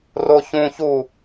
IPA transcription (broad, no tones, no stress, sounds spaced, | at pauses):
r o ç ũ ç u